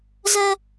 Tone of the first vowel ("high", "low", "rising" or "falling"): high